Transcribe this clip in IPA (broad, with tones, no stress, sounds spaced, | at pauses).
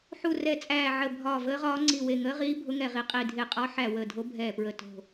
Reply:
ħ u˧˩ r ɛ˧˩ t͡sʼ æː˧˩ ʕ ə˧˩ bʱ ɒː˧˩ v əː˧˥ ʁ ɒː˧˥ ŋ͡ǀ i˧˩ w e˧˩ ŋ əː˧˥ ʁ iː˧˥ bʱ ʊ˧˥ ŋ ɛ˧˩ ʁ i˧˩ qʼ i˧˩ dʱ e˧˩ qʼ ɒ˧˥ ħ æ˧˩ w əː˧˩ dʱ o˧˥ bʱ ɛː˧˩ p ɹ ə˧˩ t o̤˧˩